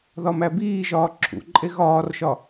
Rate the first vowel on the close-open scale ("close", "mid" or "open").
open